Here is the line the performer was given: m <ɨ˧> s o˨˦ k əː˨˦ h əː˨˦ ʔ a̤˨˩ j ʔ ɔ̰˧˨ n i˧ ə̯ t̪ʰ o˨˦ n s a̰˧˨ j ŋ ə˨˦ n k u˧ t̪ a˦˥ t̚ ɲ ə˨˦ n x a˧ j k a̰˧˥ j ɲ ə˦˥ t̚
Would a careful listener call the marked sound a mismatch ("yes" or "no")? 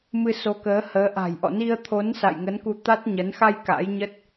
no